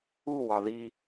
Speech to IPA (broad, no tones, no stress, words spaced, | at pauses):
uwɒ ði